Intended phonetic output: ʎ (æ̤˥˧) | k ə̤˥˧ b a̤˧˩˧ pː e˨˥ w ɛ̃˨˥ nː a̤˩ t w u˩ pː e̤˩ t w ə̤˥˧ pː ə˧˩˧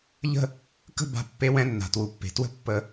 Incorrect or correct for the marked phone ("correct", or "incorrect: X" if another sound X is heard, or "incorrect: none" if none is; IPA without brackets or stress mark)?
incorrect: ə̤˥˧